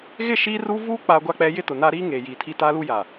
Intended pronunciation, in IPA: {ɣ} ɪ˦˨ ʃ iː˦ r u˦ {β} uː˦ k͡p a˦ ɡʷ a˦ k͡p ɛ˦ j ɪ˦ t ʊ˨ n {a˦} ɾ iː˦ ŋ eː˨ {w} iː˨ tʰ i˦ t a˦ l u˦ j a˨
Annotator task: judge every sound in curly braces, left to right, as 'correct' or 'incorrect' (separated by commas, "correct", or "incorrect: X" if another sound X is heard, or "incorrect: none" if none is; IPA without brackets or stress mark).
correct, incorrect: v, correct, incorrect: j